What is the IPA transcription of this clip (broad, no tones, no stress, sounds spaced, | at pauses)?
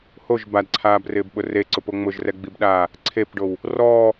h o ʒ b a d ǀʰ aː b r ɪː b ɓ ʊ r e ǀ ʊ p o ŋ͡m ʊ ʒ r ɛ ɡ͡b i b ɗ aː | ǀʰ e p ɖ o w | r ɔː